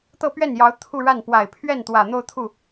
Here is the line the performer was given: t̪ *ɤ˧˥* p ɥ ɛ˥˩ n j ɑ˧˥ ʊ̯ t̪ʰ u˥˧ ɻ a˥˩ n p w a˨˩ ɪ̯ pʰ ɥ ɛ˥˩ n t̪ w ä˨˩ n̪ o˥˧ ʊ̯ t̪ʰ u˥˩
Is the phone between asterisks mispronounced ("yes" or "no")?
yes